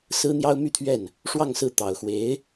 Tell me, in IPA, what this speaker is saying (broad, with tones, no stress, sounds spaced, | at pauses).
s ɹ̩˥ n̪ j ɑ˥ ʊ̯ m y˥˧ t̪ʰ ɥ ɛ˥˩ n | ʂ w ɑ˥˧ ŋ s ɹ̩˥˩ t̪ ɑ˨˩ ʊ̯ x w e˧˥ ɪ̯